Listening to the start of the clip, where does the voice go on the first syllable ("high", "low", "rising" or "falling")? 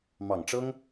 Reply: low